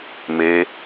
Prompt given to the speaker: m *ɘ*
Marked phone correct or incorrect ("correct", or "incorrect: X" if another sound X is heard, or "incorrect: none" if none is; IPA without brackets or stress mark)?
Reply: incorrect: e